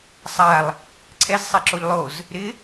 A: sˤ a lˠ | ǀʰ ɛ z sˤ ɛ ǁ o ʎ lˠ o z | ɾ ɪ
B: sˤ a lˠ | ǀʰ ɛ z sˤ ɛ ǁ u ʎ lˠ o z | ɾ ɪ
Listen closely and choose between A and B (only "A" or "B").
A